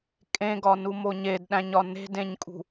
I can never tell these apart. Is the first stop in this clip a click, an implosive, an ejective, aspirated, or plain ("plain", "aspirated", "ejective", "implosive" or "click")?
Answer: ejective